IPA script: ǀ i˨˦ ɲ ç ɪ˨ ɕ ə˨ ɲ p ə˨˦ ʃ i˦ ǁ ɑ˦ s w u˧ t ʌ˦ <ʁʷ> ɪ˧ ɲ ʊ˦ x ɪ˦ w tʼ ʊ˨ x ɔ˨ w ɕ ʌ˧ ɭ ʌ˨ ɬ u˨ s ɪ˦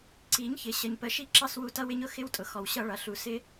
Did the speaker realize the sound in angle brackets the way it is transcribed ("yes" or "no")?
no